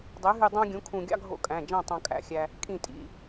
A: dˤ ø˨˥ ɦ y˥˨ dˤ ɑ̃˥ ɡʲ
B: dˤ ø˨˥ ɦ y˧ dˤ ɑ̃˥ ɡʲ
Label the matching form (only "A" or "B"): B